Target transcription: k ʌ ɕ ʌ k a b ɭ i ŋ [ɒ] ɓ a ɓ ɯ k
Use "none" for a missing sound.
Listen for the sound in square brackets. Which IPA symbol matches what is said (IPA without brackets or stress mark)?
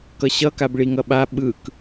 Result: ʌ